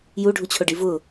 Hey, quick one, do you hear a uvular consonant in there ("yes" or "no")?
no